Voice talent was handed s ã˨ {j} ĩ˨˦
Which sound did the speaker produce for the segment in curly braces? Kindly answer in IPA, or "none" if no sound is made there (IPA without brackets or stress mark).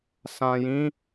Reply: j